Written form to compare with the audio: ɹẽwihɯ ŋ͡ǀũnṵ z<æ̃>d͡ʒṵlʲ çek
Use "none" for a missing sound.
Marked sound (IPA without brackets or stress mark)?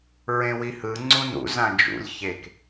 ã